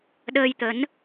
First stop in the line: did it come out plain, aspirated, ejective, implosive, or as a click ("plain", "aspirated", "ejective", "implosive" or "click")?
implosive